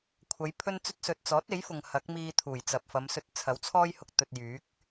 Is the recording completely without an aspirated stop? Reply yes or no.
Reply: no